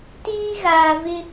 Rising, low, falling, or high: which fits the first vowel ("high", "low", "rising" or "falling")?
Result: high